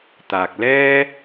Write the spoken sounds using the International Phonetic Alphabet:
t̪aː˨k̚lɛː˥

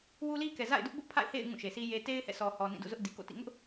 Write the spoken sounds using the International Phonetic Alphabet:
wu˦li˦kɛ˨ za̰˦˨ɪ̯dʊ˦ʔbʊ˦ʔpʰa̰˦˨ɪ̯ hḛ˦˨ɪ̯ ŋũ˦˨ʃe˨si˦je˦ te˦ɪ̯hɛ̰˦˨ sɔ˨hɔ˨ nĩ˦˨dṵ˦˨zʊ˦ʔ di˨ko̰˦˨tḭ˦˨ ŋʊ˦ʔ

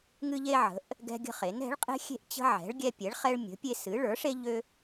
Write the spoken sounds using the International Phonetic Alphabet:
ŋɨ˦ʎe˦ʕə̤˩˥ʔ | ɡɛ̤˦ɡʲə̤˦χe˩˥n ɛ̤˩˥ɭqʼe̤˦xʲe̤˦ʔ t͡ɕə̤˦ʕɛ̤˩˥ɭɡʲɛ˦ pʲɛ˩˥ɭχɛ˦ɭ mʲə̤˩˥pʲe˦sɨ˩˥ ɭə˞˩˥ʂe˦ ʎø˦

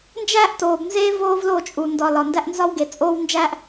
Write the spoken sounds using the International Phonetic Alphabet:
nd͡ʒæː˦ʔ toː˨bnzeː˦ voː˦vlo˦˨ t͡ʃʼu˨ ndɒ˨ lɒ˨ndæ˦ʔnzɒ˦w ɡe˨t͡sʼoː˦wnd͡ʒæː˦ʔ

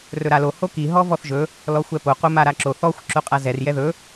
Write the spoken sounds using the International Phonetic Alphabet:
rɵɾalo hoki ɦɔvɔθʒɵ | lɔxʷɛpo qomaɾaǁo θɔxʷ ǁoqʼazɛr jɛðɵ

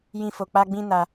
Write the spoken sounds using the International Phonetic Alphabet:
jĩ˦fo˧ k͡pa˦ɡ͡bĩ˦na˧

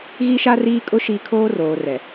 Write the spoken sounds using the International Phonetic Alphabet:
ɣi˦ʃa˦riː˦kʼʊ˦ ʃi˦ kʰoː˦roː˨rɛ˨

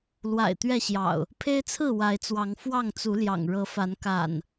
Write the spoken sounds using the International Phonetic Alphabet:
lwa̰˨˩ɪ̯ t̪ɥɛ˥˨ɕjɑ̰˨˩ʊ̯ | pʰe˦ɪ̯t͡sʰɹ̩˥˨ wa˨˦ɪ̯t͡swɑ˨˦ŋ fwɑ˥˨ŋt͡su˨˦ljɑ̰˨˩ŋ ɻɤ˨˦fa˨˦n ka̰˨˩n

